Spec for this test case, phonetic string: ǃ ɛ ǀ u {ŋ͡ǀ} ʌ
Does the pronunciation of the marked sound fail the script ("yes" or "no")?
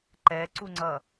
no